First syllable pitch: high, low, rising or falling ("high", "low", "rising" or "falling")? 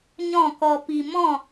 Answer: falling